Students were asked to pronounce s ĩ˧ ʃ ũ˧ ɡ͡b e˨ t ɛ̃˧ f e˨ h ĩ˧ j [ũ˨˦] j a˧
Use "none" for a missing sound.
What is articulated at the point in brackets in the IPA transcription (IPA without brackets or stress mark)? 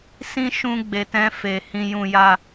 ũ˧